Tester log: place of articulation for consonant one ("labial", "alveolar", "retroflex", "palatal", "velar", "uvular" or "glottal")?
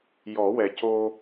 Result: palatal